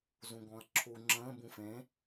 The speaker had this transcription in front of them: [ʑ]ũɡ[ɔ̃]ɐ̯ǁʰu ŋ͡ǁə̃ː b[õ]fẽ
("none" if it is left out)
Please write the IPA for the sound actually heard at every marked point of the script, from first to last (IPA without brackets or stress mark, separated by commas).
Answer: z, ɔ̃, ũ